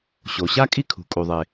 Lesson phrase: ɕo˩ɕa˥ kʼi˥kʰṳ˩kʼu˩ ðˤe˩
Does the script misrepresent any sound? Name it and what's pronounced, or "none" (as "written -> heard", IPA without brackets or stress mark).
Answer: none